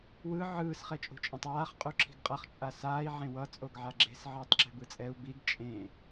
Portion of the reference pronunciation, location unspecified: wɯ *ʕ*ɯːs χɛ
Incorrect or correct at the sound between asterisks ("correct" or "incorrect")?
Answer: correct